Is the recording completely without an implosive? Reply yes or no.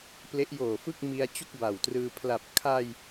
yes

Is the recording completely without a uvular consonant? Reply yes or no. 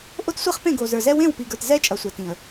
no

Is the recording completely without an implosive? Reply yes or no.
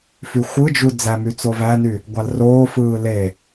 yes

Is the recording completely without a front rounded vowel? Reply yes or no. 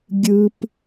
yes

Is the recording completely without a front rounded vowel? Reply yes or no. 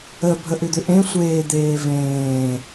no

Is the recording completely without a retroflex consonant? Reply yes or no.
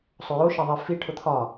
no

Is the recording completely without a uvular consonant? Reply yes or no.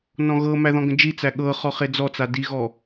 no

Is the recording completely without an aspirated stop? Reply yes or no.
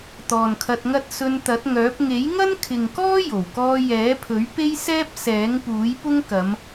no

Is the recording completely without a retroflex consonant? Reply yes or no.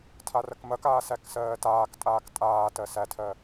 yes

